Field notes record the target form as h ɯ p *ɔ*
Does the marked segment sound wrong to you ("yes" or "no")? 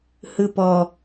no